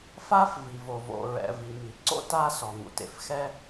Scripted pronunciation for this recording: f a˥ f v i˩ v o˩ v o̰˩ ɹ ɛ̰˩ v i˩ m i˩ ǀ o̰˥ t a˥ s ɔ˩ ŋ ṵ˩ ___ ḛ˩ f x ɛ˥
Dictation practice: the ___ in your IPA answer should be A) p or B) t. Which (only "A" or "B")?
B